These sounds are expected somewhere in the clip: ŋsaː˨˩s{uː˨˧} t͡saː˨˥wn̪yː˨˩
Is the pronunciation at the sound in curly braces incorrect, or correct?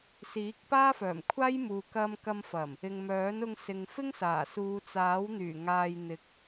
correct